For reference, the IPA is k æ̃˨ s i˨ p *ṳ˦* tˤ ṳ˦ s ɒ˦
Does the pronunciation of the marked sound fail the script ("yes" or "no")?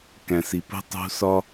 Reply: no